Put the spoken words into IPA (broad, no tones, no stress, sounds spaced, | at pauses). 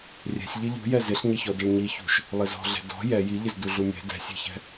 rʲ ɛ̤ sʲ ʎ ɪ ʎ ṳ j ɛ z ɪ ɬ ɲ ɪ ç ɔ d ə ɭ ɲ i ç ṳ ʃ | lˠ ɪ z ɔ̤ ɮ ɛ̤ d ɔ̤ j ɛ j i ʎ ɪ z d u ɮ u mʲ ɛ̤ d ɛ̤ sʲ ɛ̤ ç ɛ̤